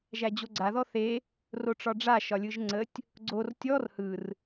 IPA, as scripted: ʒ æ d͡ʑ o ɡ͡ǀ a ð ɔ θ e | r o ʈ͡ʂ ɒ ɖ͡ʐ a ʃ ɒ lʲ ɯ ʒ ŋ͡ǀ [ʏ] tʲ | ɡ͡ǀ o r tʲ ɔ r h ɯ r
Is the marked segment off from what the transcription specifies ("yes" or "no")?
yes